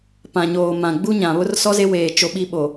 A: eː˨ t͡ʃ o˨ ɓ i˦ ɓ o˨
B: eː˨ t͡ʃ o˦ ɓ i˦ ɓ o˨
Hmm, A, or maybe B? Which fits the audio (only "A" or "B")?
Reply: B